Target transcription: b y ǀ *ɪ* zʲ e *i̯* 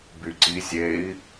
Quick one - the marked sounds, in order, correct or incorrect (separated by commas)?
incorrect, correct